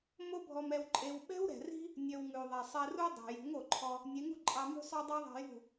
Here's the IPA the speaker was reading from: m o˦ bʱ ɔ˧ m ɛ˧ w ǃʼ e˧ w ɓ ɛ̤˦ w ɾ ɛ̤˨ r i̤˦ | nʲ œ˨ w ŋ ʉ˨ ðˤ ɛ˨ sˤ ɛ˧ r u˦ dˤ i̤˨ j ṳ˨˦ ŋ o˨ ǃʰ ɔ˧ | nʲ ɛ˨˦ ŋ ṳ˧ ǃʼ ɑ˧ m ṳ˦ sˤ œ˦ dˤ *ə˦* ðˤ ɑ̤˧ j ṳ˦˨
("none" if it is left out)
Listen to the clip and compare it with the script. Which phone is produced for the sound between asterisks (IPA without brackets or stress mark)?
ɑ˦